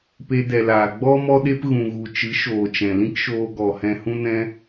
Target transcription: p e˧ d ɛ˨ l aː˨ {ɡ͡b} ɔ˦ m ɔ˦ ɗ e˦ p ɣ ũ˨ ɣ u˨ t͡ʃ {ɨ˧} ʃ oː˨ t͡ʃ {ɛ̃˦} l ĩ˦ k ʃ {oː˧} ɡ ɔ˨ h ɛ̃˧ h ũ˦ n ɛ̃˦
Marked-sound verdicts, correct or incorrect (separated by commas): correct, incorrect, incorrect, correct